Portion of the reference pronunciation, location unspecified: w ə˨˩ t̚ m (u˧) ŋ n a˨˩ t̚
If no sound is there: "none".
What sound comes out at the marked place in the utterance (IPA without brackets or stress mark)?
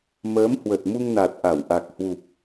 u˧